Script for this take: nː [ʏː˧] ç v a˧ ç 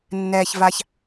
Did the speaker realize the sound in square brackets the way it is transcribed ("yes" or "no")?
no